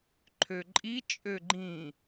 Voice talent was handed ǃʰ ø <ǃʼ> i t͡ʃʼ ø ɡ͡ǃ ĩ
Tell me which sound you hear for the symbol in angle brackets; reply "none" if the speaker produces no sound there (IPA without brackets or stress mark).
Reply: ǃʼ